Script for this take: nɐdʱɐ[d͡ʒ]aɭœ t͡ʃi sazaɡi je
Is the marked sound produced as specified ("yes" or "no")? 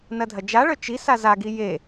yes